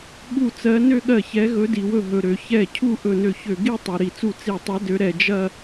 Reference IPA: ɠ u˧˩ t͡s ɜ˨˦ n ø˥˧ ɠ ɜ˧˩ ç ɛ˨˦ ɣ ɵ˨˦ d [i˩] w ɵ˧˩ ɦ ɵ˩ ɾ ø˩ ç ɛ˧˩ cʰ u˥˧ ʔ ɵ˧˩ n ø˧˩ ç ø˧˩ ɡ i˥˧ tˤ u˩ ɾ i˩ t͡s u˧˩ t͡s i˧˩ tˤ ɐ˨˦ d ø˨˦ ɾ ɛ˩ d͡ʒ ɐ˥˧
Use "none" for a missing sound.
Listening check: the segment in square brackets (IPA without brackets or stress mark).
i˩